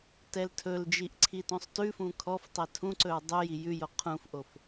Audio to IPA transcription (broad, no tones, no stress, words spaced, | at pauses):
tɛltʰɵld͡ʒiʔ ǀʰitõsˤtʉfũ kʰɔftˤɛ tʰũǀɵɹ dˤʉ jijʉjo qʰũfʔof